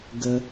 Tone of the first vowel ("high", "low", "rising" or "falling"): high